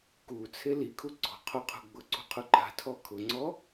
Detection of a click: present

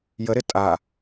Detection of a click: absent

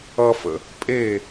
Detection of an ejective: present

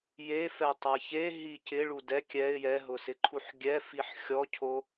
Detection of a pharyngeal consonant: present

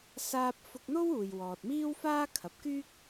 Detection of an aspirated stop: present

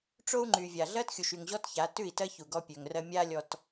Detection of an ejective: absent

